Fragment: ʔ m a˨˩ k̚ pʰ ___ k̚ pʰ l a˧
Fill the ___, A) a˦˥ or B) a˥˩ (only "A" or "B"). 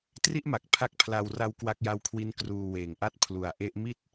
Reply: A